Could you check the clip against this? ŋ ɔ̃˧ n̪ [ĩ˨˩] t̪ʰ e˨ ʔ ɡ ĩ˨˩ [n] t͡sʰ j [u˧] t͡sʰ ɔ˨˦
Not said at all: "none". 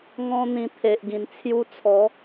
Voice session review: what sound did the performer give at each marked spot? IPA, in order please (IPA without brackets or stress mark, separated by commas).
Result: ĩ˨˩, n, u˧